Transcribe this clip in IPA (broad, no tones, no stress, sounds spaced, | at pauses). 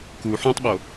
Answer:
k u ħ ũ tˤ ɓ o